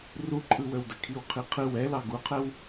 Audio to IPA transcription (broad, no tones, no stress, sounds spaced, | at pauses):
r u ǃʼ ɯ w ə w d ə kʰ i w qʰ i qʰ ɯ w ɛ l ɑ ɡ u qʰ ɛ w